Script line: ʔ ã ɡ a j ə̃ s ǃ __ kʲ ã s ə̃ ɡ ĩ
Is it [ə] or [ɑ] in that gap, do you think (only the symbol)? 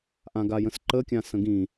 ə